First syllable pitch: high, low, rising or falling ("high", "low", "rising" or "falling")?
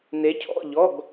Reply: rising